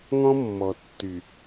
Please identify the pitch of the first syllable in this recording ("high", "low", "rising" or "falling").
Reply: high